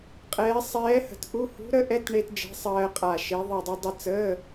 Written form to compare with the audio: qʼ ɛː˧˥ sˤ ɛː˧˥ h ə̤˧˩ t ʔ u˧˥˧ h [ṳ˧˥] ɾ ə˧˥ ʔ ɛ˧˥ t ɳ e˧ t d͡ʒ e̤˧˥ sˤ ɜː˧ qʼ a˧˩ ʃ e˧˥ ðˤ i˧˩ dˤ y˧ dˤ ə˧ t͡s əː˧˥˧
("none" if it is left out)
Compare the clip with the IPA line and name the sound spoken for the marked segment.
ṳ˧˥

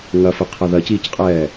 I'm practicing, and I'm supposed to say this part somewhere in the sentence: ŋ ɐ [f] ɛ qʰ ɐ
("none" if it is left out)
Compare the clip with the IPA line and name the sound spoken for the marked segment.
f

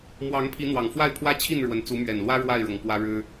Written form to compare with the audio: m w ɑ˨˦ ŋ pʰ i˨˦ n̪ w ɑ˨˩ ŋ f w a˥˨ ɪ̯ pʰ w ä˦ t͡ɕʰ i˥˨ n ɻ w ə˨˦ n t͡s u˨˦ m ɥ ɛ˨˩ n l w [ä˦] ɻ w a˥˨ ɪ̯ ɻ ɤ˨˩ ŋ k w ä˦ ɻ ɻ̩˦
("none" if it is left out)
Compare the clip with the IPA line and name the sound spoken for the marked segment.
ä˦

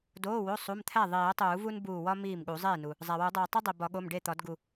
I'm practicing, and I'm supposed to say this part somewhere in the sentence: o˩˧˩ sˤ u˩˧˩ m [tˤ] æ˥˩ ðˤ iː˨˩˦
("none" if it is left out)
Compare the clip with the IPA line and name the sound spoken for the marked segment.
t̪ʰ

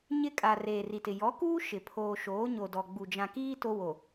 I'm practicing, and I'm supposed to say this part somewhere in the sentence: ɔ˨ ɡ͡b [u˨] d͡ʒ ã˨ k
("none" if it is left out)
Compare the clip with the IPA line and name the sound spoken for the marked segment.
u˨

